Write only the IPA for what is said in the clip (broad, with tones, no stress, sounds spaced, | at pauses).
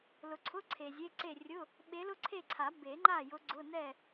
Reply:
l ʊ˨ ǀʰ ʊ˧˥˧ ǀʰ e˨ zʲ e˧˥˧ ǀ e˥˨ rʲ ʊ˧˥˧ | ɓ e˧˥ l ʊ˥ ǀʰ e˥˨ ǀʰ a˨˩˦ b e˨˩˦ ŋ͡ǃ a˥˨ j ʊ˧˥ ɡ͡ǀ ʊ˧˥˧ n ɛ˥˨